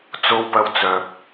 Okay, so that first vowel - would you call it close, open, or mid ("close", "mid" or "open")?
mid